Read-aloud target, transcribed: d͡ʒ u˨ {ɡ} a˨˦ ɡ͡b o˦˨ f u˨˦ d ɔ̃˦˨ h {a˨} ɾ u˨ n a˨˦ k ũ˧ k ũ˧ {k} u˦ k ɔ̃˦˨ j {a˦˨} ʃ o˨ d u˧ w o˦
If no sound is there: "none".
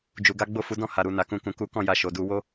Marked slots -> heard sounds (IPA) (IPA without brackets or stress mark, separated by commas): ɡ, a˨, k, a˧